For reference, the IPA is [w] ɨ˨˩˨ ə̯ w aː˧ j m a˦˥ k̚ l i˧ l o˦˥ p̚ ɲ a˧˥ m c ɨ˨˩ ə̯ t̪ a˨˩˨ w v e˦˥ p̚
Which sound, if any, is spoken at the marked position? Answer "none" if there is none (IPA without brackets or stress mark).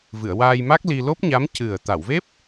v